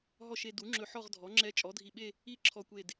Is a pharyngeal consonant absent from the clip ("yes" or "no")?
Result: no